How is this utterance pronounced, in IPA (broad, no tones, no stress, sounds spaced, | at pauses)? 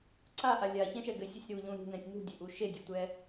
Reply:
ǀ a ʔ a lʲ a ç ɛ̃ ʃ ɛ ɡ ɘ sʲ i sʲ ɾ u ʎ ũ ɾ ṳ n ɛ̃ sʲ n ṳ dʲ ɘ ʔ u ʃ e dʲ u tʷ ɛ